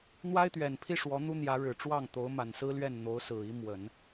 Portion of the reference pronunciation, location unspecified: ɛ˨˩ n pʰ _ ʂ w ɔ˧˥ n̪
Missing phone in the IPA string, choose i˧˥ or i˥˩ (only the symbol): i˥˩